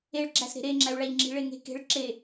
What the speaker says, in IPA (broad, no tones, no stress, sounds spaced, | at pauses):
e ɭ ɡ͡ǁ æ s ɾ e̤ ɾ e ŋ͡ǁ æ u̯ ɭ æ ʎ ŋ͡ǁ i̤ ɭ e ŋ e̤ k e̤ ɭ ǁ e